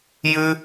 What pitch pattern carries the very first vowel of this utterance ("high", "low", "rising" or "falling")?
high